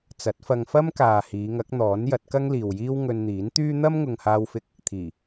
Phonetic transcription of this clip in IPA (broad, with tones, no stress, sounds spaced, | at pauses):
t͡s ɐ˨˥ t̚ f ɐ˧ ŋ f ɐ˥ m k aː˨ h iː˨˧ ŋ ɐ˨˥ k̚ n̪ ɔː˨˥ n j ɐ˨˥ t̚ k ɐ˥ ŋ l iː˨ w j iː˥ w ŋ ɵ˧ n n̪ iː˨˥ n t̪ yː˥ n̪ ɐ˥ m ŋ ʊ˨ ŋ h aː˧ w f ɪ˧ k̚ | t̪ʰ iː˨˩